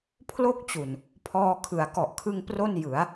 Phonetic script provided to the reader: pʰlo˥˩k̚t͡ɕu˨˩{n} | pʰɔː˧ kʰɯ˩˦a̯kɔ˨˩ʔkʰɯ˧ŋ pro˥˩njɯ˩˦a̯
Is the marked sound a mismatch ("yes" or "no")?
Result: no